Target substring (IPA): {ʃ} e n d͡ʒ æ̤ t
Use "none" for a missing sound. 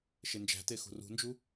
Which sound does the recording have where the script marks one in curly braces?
ʃ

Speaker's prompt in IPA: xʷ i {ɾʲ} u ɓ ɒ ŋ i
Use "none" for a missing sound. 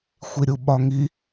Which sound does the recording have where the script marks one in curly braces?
ɾʲ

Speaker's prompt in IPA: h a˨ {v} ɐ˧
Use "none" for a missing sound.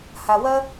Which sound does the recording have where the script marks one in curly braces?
w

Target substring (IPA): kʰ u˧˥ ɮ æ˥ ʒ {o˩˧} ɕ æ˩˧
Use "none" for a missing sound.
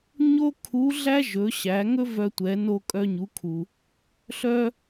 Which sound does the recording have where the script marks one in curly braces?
ɵ˩˧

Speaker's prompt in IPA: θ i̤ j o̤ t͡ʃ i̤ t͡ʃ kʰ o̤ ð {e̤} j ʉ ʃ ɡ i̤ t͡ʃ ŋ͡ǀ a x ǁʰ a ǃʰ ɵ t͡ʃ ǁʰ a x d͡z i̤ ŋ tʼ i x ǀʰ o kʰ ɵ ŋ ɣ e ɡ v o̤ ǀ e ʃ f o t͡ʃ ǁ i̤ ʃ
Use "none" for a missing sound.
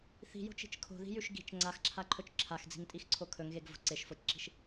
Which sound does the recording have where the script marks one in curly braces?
i̤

